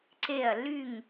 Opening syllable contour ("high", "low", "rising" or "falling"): falling